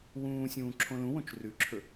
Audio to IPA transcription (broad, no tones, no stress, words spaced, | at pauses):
wũːsʲũː ǁʰõlũwõt͡ʃ rʉǁʰɵ